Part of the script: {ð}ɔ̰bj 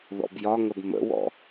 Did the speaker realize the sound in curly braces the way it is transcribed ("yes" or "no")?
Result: yes